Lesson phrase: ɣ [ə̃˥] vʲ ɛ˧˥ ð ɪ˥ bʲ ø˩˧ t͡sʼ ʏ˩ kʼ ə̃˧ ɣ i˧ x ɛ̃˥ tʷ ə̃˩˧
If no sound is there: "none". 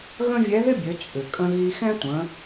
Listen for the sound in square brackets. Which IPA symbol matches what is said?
ə̃˥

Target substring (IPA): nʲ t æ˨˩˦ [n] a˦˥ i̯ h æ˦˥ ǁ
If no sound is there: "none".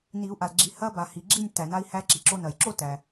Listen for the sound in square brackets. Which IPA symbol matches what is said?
n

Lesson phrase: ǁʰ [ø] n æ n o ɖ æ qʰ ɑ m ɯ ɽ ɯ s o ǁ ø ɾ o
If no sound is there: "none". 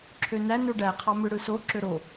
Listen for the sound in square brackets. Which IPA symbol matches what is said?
ø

